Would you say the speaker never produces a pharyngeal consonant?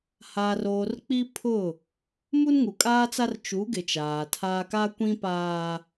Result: yes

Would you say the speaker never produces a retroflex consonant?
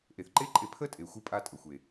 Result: yes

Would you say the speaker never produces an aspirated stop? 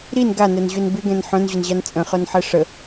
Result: yes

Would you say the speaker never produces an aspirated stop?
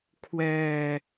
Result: no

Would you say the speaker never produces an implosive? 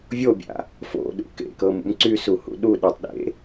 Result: no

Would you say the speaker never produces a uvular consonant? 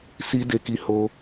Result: yes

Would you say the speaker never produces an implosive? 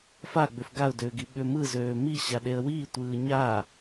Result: no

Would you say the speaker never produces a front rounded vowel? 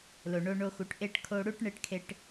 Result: yes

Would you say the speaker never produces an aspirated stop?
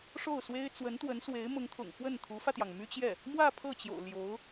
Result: no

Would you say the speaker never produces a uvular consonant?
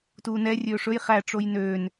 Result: no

